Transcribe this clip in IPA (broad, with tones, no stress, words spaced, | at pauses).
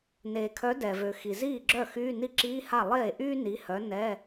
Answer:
neː˩kʰœ˨˥ dɛ˩vø˩ xi˩ ziː˥˩ɡ͡ǁœ˥˩xyː˧˥˧ ni˥˩ǁiː˧˥˧ha˥˩ lˠeː˥˩ʔyː˥ ni˨˥hœ˨˥ nɛː˧˥˧